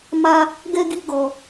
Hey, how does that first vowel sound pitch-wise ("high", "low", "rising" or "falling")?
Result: high